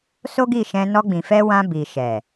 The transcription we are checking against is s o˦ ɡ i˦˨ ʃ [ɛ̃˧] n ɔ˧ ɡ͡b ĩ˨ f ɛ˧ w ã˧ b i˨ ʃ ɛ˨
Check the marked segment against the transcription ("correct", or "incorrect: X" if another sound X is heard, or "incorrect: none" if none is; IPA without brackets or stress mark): correct